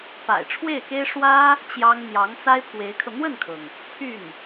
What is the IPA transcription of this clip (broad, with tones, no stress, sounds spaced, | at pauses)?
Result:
p a̰˨˩ ɪ̯ ʈ͡ʂʰ w e˥˩ ɪ̯ k e˥ ɪ̯ ʂ w ä˥ | t͡ɕ j ɑ˥ ŋ n̪ j ɑ˧˥ ŋ t͡s a˥ ɪ̯ pʰ w e˧˥ ɪ̯ kʰ ɤ˧ n̪ w ə˥˩ n kʰ ɤ˩ ŋ | pʰ y˥˩ n